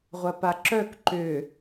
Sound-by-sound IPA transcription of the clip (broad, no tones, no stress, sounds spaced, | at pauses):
ʁʷ ɐ p a ǁ œ k ǃ ʏ